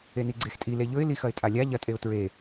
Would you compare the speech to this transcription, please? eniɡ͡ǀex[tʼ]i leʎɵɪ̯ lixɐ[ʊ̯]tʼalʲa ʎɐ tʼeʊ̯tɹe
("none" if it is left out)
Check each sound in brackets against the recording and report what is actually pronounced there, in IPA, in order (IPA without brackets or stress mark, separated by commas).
tʼ, ɪ̯